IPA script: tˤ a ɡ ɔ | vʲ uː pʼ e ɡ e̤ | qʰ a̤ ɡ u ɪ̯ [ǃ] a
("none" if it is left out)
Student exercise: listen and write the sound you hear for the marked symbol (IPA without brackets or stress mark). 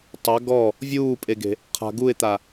t̪